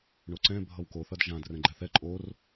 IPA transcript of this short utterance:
ɳ o ǀ ɛ̃ bʱ ʌ w k o θ ʌ d ʒ ã d r ɛ̃ ɡ͡ǃ ɛ θ ɛ ǃʼ o r

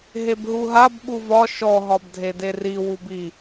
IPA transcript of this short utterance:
ɦ e b ɦ u ɦ a b ɓ u v ɒ ʃ ɔ ɦ ɒ b dʱ e d e r i w u b i

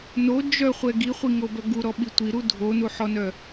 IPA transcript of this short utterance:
n o d͡ʒ œ χʷ ɛ ɡ i χʷ i ŋ o b œ ɡ u ɾ ɔ ɓ i tʷ i ɾ u dʱ o n u ħ ɔ n œ

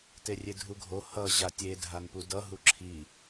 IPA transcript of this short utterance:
t e rʲ e dʱ u ɡʱ o h ʌ ʑ a tʲ e dʱ a n p u d ʌ ɦ u ǁʰ i

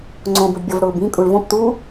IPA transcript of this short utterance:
ŋ͡ǀ õ b ʊ ɖ bʲ ɔ v ɽ ʊː b ĩ kʼ u ɭ v õ p t u

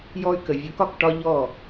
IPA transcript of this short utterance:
j ɔ˧ y̯ k ə˨ vʲ o˨˦ k ɒ˨ k ʈ ɒ˦ ʎ ɔ˦˨

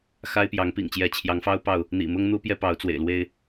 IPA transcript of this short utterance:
x a˦ ɪ̯ p j ɑ˨˦ ŋ p ḭ˨˩ ŋ t͡ɕ j ɛ˨˦ t͡ɕʰ j ɑ˨˦ ŋ f ɑ˦ ʊ̯ p ɑ˥˨ ʊ̯ | n̪ ḭ˨˩ m ʊ˦ ŋ n̪ u˦ p j ɛ˦ p ɑ˨˦ ʊ̯ t͡s w ḛ˨˩ ɪ̯ l w e˦ ɪ̯

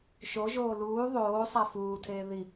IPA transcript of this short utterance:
ʃ o ʒ oː l uː ðˤ oː sˤ æ f uː tʰ eː ð i

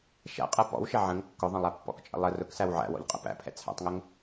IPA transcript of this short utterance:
ʃ æ̰ qʼ ɛ p ɔ̰ w ʃ ɛ ʕ ə̃ ŋ kː ʊ ðˤ ə̃ lˠ æ pː ɔ̰ k t͡ʃʼ ə̰ lˠ ə r ʊ k s æ w ʕ æ̰ w ɔ̰ ʎ qʼ ə̰ p æ̰ pʰ ɛ̰ t͡sʰ æ̰ tˤ ŋ ʊ ŋ

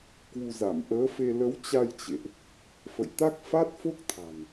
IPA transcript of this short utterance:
k w u˧ z a˧˩ m ʔ əː˨˦ f e˧ l ə˨˦ w t͡ɕ a˧ j t͡ɕ ḛ˧˨ ʔ | f ə̰˧˨ j t̪ a˦˥ k̚ f a˦˥ t̚ f o˦˥ k̚ t̪ʰ a̤˨˩ n

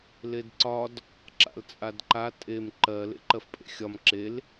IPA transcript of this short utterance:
l e d ǀ ɒ d | ǁ a̰ l t͡sʼ a d ǃ a tʼ e m ǃ ɜ l ḛ ǃ ɜ f pʼ ḛ xʲ ɒ m ǁ e l

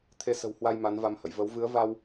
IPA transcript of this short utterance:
t̪ʰ e˧ s ə̤˨˩ w h w a˧ j m a˨˦ n v a˧ m h ə̰˧˨ j v ə˨˦ w v ɨ˨˦ ə̯ v a˧ w

